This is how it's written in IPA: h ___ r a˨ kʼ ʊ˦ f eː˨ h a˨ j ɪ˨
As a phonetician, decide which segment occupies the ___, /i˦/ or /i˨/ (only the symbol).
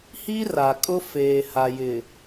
i˦